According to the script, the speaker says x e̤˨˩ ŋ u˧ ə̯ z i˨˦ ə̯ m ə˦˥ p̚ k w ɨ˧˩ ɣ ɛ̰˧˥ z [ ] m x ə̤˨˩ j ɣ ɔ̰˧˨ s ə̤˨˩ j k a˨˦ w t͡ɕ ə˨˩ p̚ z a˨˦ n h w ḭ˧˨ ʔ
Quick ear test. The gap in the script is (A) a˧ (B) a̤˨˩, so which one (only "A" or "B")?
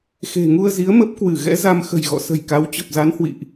A